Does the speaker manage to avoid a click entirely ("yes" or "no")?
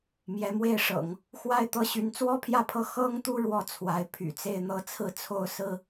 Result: yes